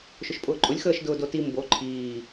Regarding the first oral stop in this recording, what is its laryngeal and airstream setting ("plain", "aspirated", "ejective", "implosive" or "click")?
ejective